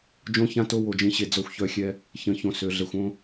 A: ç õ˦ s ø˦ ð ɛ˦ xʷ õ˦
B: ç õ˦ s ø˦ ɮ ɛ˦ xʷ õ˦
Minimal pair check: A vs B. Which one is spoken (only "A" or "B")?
B